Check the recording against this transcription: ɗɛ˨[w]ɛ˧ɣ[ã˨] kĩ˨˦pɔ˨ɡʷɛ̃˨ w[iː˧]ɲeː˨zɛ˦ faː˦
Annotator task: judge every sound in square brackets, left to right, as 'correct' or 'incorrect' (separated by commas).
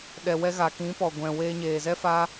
correct, incorrect, incorrect